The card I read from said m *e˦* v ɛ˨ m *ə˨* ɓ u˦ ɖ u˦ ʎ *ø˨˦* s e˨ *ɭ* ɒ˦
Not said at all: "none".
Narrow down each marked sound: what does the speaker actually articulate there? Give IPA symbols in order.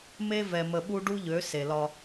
e˦, ə˨, ø˨˦, l

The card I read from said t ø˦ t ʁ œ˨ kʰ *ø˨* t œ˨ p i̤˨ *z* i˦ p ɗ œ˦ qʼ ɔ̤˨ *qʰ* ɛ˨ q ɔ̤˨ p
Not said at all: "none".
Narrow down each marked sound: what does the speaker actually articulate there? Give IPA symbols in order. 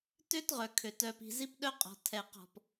ø˨, z, tʰ

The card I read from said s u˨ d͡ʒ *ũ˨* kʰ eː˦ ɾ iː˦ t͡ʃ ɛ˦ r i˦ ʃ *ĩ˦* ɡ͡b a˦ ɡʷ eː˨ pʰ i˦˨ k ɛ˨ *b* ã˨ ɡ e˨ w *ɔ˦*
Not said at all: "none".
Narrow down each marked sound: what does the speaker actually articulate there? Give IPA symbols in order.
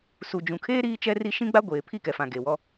ũ˨, ĩ˦, f, ɔ˦

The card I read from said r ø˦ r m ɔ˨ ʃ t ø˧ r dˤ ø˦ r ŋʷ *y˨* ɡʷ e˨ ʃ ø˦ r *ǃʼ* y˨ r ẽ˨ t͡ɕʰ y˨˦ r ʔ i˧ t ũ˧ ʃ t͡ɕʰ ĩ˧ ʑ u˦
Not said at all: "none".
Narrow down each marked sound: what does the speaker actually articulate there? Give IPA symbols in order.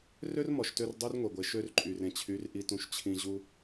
e˨, ǃʼ

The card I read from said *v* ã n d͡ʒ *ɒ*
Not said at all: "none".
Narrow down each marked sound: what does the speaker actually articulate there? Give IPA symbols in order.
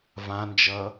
v, ʌ

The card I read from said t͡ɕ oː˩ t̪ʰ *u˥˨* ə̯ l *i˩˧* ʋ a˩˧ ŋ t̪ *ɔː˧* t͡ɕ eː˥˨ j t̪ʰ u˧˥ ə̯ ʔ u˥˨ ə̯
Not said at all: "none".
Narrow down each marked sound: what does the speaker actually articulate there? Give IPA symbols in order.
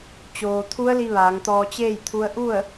u˧˥, i˧, ɔː˧

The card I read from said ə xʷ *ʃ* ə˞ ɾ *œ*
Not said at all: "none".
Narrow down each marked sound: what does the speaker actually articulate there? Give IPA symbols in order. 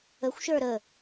ʃ, ə

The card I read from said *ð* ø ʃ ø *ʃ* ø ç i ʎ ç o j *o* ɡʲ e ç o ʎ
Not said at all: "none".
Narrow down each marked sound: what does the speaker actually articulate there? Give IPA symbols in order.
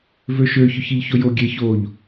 v, ç, o

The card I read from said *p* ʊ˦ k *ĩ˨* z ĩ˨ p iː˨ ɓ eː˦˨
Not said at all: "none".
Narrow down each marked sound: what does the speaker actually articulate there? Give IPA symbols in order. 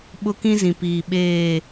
ɓ, ĩ˦

